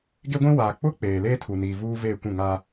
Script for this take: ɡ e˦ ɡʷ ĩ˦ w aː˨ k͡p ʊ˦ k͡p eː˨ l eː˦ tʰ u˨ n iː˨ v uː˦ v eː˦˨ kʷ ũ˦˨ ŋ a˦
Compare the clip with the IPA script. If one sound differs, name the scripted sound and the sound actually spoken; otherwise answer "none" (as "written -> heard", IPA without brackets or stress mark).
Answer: none